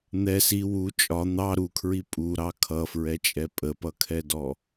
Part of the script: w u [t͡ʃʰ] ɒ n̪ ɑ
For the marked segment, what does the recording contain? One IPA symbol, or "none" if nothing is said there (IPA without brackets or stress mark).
t͡ʃʼ